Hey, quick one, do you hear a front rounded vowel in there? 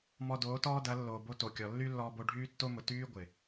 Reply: yes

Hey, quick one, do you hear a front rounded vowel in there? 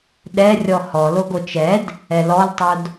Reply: no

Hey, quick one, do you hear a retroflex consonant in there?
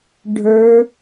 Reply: yes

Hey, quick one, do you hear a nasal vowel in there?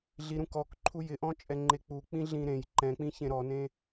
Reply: yes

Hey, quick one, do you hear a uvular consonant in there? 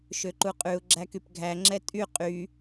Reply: yes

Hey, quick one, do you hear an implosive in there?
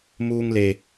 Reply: no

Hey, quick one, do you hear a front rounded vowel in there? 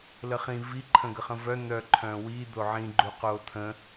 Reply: yes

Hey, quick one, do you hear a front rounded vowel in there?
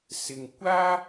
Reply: no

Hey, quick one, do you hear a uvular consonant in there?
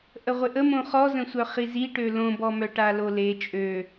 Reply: yes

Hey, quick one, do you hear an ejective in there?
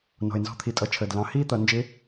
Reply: yes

